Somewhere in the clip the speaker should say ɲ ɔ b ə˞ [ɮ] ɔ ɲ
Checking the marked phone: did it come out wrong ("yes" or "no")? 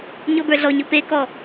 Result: no